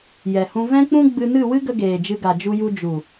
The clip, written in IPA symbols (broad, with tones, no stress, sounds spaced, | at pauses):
j ɛ˨ h ũ˧ v ɛ̃˦ k͡p ũ˦ ɡ͡b ɨ˧ n ɨ˦˨ w ɨ˦ ɡ ə˧ ɡ eː˨ d͡ʒ ɨ˧ ɡ a˨ d͡ʒ u˧ j u˧ d͡ʒ u˨